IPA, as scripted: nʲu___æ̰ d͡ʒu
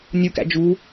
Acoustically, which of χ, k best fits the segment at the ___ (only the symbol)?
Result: k